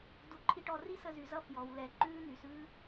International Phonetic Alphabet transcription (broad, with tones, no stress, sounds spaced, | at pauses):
d u˨ ǃʰ i˧ ʈ ɔ˧ r i˦ s ə˧ z y˨ z ʌ˦ f j ɔ˨ w l ɛ˨ ǃ ʉː˦ n̪ y˨ s ʉː˦